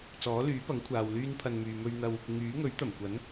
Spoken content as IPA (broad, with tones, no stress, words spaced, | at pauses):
t͡sɔː˨˥lyː˨˥pɐ˨˥ŋ kʷʰaː˨wlyː˥npʰɐ˧nmyː˨ mɵ˧ɥn̪ɐ˧w | ŋyː˨˥ŋɵ˨˥ɥt̪ɐ˨˩mkʷɐ˨˥n